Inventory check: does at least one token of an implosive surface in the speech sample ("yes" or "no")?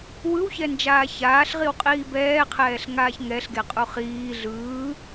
no